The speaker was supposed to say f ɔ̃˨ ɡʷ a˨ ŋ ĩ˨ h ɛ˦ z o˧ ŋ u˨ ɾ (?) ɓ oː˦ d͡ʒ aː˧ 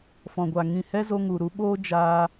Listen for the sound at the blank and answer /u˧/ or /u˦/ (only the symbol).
u˧